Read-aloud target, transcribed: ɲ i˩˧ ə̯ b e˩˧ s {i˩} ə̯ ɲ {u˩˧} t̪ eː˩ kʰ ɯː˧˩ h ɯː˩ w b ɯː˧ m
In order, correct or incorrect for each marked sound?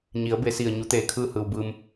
correct, correct

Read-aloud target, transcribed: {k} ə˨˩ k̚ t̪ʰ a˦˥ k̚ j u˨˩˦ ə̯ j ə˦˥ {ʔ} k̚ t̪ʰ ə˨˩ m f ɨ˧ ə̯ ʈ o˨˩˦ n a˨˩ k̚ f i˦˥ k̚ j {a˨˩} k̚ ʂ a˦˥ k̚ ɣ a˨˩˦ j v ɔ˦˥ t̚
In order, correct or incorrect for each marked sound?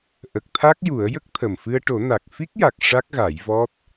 incorrect: ʔ, incorrect: none, correct

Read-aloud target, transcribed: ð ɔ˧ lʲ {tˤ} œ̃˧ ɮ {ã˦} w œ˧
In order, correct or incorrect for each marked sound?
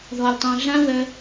correct, correct

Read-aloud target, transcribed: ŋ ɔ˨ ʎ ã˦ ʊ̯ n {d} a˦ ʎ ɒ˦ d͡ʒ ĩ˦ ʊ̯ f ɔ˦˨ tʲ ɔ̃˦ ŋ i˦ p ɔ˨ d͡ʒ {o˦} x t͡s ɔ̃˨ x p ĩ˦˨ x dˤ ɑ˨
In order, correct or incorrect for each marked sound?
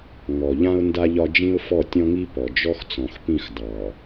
correct, incorrect: ɔ˦

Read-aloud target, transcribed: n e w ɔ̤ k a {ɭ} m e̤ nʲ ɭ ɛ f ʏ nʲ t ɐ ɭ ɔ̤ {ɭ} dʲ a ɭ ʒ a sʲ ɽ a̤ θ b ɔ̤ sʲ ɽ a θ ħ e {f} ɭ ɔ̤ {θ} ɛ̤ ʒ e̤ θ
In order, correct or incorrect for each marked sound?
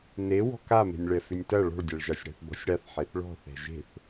incorrect: none, correct, incorrect: θ, correct

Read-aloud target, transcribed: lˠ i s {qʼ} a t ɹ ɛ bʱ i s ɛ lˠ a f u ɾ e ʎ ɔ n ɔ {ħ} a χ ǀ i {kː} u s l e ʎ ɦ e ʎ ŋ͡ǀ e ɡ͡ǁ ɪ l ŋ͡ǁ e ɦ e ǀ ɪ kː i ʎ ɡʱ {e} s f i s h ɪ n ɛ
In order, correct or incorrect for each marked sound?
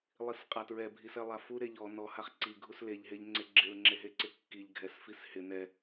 correct, incorrect: h, incorrect: ɡʱ, incorrect: ɛ

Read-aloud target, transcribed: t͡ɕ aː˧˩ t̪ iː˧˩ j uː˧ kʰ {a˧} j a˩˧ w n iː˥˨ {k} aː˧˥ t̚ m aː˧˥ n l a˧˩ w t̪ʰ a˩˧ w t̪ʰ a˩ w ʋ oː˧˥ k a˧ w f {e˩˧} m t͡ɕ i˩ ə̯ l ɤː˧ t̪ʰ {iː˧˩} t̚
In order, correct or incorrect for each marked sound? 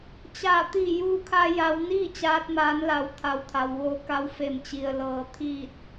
correct, incorrect: t͡ɕ, incorrect: e˧˩, incorrect: iː˥˨

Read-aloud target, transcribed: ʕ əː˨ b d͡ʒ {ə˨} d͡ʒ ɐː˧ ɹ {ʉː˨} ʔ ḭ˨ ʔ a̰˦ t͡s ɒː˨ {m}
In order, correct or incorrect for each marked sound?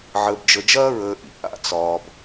correct, incorrect: əː˨, incorrect: b

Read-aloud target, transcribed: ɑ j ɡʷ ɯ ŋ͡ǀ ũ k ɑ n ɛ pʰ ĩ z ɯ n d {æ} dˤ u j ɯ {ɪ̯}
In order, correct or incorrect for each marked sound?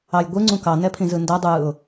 correct, incorrect: ʊ̯

